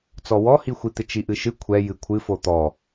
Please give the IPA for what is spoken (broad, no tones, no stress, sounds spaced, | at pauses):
t͡s ɔ w ɔ h i xʷ i t̪ ɪ t͡ʃ i ʔ ɨ ʃ ɨ kʷʰ ɛ j ɨ kʷʰ ɨ f o t̪ ɔ